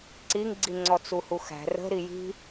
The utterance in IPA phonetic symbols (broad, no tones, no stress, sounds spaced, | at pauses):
ǀ i ŋ ɡ͡ǀ i ŋ͡ǀ ɔ t͡s u h u x æ̤ r ə̤ ɾ i j i̤